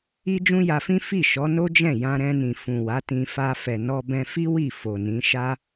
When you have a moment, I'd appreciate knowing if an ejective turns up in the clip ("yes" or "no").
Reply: no